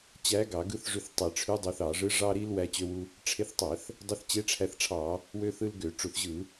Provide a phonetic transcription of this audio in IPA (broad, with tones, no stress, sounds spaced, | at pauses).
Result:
t͡ɕ æ˧˥ ɡ ɑ˧˩˧ ɡ ɯ˧˥ θ ʐ y˧ θ tˤ e˧˩˧ ʈ͡ʂʰ y˧˥ dˤ ø˧ θ ɑ˧˩˧ ʐ ɯ˧˥ ʐ ɑ˧ ɾ i˧ l w æ˧ t͡ɕ ø˧ w u˧ | ʈ͡ʂʰ e˧ θ tˤ æ˧˩˧ θ | dˤ e˧˥ θ t͡ɕ e˧˥ ʈ͡ʂʰ æ˧ θ ʈ͡ʂʰ ɑ˧˩˧ | w ø˧ θ ɯ˧ l ɡ ø˧˩˧ ʈ͡ʂ u˧˩˧ θ ʑ ɯ˧˩˧